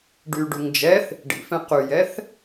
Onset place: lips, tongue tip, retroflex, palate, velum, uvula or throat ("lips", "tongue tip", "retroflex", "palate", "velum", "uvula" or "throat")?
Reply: retroflex